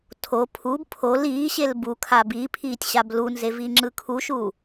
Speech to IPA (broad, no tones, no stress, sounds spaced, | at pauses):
tʰ o pʰ u b pʰ o l iː ɕ e l b u kʰ a b i pʰ iː tʲ ɕ a b l u n z e v i ŋ͡ǁ ɯ kʰ u ʃ u